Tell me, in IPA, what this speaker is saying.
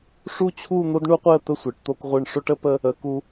ʂu˥˧t͡ɕʰu˥˧ n̪o˥dɳu˥qʷe˥˧ə̯ t̪ə˥˧sʷe˩˧ʈ t̪o˧kʁʷɯ˧˩ɳ ʂo˥ʈə˥ pə˥ | ə˩˧ku˧

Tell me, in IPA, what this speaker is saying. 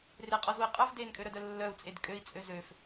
reqʼɔzui̯ qʼœv denkʼøɾœdœ lːœu̯t͡sʼed kʼøi̯t͡sʼø zøf

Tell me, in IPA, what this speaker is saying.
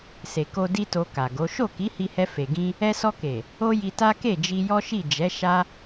se˨ko˧ di˦to˧ka˨ɡo˨˦ ʃo˦˨ki˨˦hi˧hɛ˧ fe˨ ɡĩ˧ | ɛ˧sɔ˧ke˨ | o˦ji˧ta˦ ke˦˨d͡ʒi˧ jɔ˦ʃi˦˨ d͡ʒɛ˨˦ ʃa˦

